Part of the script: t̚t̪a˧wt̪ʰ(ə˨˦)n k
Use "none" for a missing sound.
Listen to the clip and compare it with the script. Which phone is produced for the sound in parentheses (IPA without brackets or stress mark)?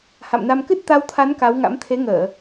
a˨˦